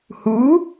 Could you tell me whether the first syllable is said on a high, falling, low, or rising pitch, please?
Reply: rising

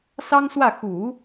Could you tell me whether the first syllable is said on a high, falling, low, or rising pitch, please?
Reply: high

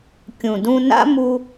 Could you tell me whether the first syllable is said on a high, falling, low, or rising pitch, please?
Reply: low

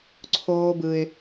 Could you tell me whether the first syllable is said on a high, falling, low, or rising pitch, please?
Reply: high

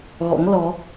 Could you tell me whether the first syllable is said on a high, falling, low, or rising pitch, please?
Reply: rising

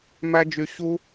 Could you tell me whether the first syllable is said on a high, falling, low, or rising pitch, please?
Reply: high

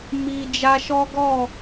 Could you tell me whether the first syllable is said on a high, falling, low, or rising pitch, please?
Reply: low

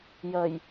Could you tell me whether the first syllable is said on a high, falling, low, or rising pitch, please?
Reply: low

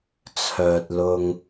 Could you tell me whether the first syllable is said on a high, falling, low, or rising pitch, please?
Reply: low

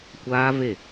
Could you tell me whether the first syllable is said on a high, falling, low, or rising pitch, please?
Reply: high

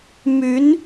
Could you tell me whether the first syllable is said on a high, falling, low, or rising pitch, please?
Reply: rising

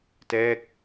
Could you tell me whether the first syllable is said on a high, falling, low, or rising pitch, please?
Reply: falling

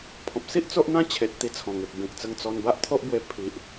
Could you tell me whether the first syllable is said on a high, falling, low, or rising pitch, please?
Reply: low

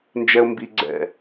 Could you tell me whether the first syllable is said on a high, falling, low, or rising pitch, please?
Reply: low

